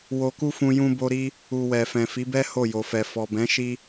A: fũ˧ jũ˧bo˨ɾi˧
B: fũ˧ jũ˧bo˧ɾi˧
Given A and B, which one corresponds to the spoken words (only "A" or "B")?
B